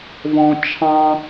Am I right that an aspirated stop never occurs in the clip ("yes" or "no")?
no